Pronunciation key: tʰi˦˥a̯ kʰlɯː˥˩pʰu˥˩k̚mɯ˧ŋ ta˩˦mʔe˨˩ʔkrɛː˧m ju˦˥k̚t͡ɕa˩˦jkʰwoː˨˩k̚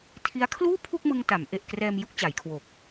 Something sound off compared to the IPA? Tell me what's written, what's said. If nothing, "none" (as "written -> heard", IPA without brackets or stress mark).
ɯː˥˩ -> uː˥˩